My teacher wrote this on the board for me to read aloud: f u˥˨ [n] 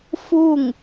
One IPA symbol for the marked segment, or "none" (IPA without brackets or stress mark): ŋ